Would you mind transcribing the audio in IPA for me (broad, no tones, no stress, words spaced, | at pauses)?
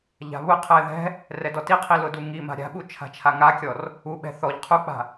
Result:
ʎa̤βʊqʰɛ ðɛ̤ | rɛdɔtiqʰi lʊduŋima̤ ɾʲa̤ɓu t͡ʃʰa̤t͡ʃʰaŋakʲɔr | uɓɛ̤ θɔʎ qʰuk͡pa̤